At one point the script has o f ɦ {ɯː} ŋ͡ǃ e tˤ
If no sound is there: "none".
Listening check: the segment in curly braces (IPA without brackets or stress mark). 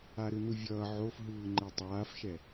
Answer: ɯː